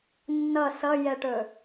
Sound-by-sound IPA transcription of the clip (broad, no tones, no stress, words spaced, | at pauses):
nːʌ sʌjɛʈɵ